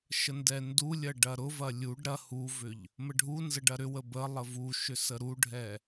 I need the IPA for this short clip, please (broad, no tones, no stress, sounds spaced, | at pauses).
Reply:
ʃ ə n d ɛ n d u lʲ ɐ ɖ ɐ ɾ ʊ v ɐ lʲ u ɖ ɾ ɐ h u v ʏ ʎ | m ə ɖʱ u n z ə ɖ ɐ ɾ ʏ w ə b ə lˠ ə v u ʃ ʏ s ə ɾ u ɖʱ ɛ